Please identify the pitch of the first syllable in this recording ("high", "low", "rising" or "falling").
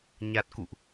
low